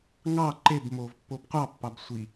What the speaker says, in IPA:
ŋ ɑ ǃ e b m o v pː o b qʷ ɑ pː ɑ b sʷ i

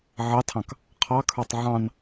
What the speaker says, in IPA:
ʕ ɑ tʰ ɑ̃ k | qʰ ɑ kʰ ə˞ tˤ ʕ ɑ̃ n

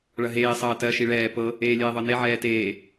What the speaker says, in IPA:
ɭ ɐ ɦ eː sˤ ɐː t ɜ ʃ i ɭ ɛː p ɤ | eː lʲ eː ðˤ ɤ n e ʕ ɛː t eː

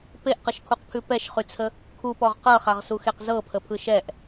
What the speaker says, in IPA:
p e ʔ q ə ʃ kʰ u q pʰ ʉ p ɛ ʃ χ y t͡sʰ ə | kʰ u p ɔ ʁ q ɤ χ a ʁ s u x e q z ɤ pʰ ə pʰ ɯ ʃ ɛ ʔ

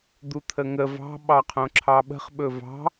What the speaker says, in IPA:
d̪ u t̪ʰ ə ŋ ə v ɑ̤ ɓ ɑ qʰ õ ǁʰ ɑ ɓ ə̤ χ ɓ ɵ v ɑ̤

